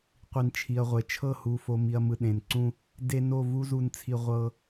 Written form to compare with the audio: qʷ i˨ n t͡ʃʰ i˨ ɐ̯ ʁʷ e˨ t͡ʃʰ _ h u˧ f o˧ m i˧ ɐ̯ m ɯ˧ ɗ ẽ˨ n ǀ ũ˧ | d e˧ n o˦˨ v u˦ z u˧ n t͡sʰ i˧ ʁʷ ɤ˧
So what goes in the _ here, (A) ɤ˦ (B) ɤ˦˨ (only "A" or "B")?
B